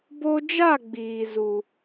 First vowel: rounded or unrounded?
rounded